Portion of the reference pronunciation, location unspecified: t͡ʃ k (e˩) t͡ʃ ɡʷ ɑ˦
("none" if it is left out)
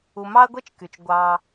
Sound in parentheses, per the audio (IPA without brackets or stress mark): y˩